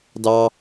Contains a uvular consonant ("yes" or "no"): no